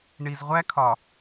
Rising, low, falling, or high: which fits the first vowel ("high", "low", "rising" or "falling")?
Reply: low